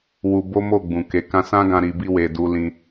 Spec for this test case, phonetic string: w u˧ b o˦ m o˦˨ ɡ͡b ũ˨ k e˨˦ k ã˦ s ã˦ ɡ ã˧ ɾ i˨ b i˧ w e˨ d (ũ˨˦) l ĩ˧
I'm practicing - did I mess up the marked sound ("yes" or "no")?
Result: yes